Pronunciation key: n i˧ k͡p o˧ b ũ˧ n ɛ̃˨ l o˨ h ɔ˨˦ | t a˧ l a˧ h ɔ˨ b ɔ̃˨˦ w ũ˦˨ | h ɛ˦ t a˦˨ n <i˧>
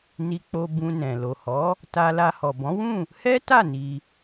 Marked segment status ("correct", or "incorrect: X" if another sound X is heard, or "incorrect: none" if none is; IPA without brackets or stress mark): correct